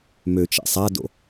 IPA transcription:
m ø t͡ʃ ɛ̰ sˤ a d o̰

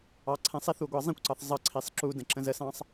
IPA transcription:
ɑ ǀʰ ɛ̃ sˤ i θ u ɡʷ ɑ zˤ ĩ kʷ ǀ ɑ θ zˤ ʌ ǀʰ i sˤ ǁ u d ə̃ ǁ ə̃ z ə s ɑ̃ sˤ

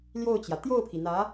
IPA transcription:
l j o˥˩ ʊ̯ t͡ɕ j ä˩ t̪ j o˥˩ ʊ̯ pʰ i˩ n̪ ä˧˥

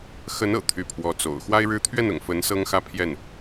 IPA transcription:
x ə˧˥ n ɤ̰˨˩ t̪ʰ y˧˥ pʰ w ɔ˧˥ t͡s o̰˨˩ ʊ̯ x w a˥ ɪ̯ ɻ ɻ̩˥ t̪ʰ ɥ ɛ˥˩ n ʊ̰˨˩ ŋ f ə˧˥ n s ɤ˥ ŋ x ä˥˧ pʰ j ɛ˥˩ n

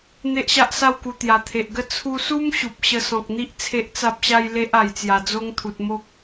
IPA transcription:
n̪ e˦ ʔ ɕ a˦ ʔ s a˥˧ w k u˨˩ t̪ j a˨˩ t̪ʰ e˨ ʔ ɡ ə˦ t͡sʰ u˧ s u˦ m ɕ u˨ p̚ ɕ ə˧ s ɔ̃˨ k̚ n̪ i˦ ʔ t͡sʰ e˦ ʔ t͡s a˦ p̚ ɕ a˦ j l e˦ ʔ a˨˩ j t͡s j a˨˩ d͡z o˦ ŋ t̪ʰ u˨ t̚ m o˦ k̚

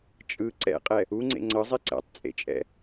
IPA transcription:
t͡ʃʼ ɯ ǀ ɛ̰ qʼ ɛ | u ŋ͡ǀ ḛ ŋ͡ǀ ʌ zˤ e ǀ ɛ̰ tˤ t͡sʼ ḛ t͡ʃʼ ɛ̰

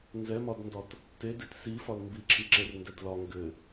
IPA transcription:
n z ɛ m ɒ d n d ɒ t | t e d e t s i f ɒ l m b i ǁʰ i ǁ e r n d ɛ d l ɒ ŋ ɡ ɘ

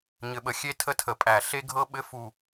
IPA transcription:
ɲ ɘ˨˩ ɓ ə˨˩ xʲ e˥ tʰ ə˥ tʰ ə˨˩ pʼ æ˨˩ ɬ e˥ ɡʱ ɤ˥ ɓ ɘ˥ f u˨˩

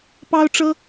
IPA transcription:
p ɑ˥ ʊ̯ ʈ͡ʂ ɤ˥

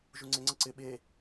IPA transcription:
ʒ u ŋ͡ǀ ɪ ŋ͡ǀ ə ǀ ɪ ɓ e

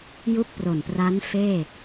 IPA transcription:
j u˥˩ k̚ p r o˨˩ n p r a˦˥ n f eː˥˩

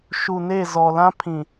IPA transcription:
ʃ u˨ n e˦˨ z ɔ˨ l ã˦ pʰ ĩ˨

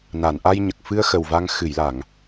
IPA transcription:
n a˨˩˨ n ʔ a˧ j ɲ ə˨˩ k̚ f ɨ˧ ə̯ x ə˨˩ w v a˧ ŋ x ɨ˨˩˨ j l a˨˩˨ ŋ

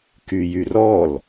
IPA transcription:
k y j y r ɔ l

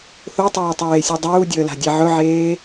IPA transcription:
θ o tˤ eː tˤ eː sʲ u dˤ uː dʲ əː l a̤ dʲ ɛ ʕ ɵ ʕ eː

